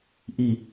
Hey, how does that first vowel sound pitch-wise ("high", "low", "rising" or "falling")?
falling